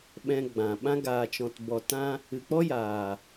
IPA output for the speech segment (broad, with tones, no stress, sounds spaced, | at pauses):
ɓ ɛ̃˧ ɡ͡b ã˨ ɓ ã˦ ɡ aː˨ t͡ʃ ɔ̃˨ t b ɔ˨ t ã˧ | ɨ˨ k͡p ɔ˦ j aː˨